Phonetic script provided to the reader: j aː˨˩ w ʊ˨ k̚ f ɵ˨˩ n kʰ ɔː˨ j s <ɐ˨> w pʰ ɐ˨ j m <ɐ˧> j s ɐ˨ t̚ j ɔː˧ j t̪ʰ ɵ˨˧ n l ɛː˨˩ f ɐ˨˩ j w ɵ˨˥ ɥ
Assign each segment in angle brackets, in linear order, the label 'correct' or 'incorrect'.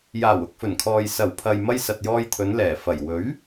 incorrect: ɐ˨˩, correct

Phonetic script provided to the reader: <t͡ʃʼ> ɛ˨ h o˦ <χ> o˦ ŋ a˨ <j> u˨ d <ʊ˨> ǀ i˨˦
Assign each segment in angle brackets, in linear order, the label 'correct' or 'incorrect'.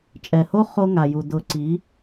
correct, correct, correct, correct

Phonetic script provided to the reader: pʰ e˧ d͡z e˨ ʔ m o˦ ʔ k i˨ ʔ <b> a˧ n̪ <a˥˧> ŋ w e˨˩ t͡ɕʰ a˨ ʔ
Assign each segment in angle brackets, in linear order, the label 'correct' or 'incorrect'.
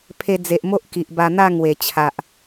correct, correct

